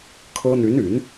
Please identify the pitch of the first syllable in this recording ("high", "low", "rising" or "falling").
high